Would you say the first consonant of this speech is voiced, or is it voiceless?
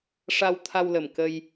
voiceless